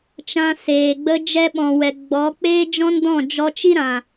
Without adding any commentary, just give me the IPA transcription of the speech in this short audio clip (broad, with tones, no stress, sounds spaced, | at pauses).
t͡ʃ ã˧ s eː˨ ɡ͡b ə˧ d͡ʒ ɛ˧ ɓ ɔ̃˨ w ɛ˨ ɡ͡b ɔ˨˦ k͡p eː˦ d͡ʒ ɔ̃˦ n d ɔ̃˦˨ d͡ʒ ɔ˧ t͡ʃ i˦ ɾ ã˨